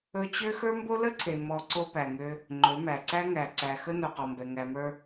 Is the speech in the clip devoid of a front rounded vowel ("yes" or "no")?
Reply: no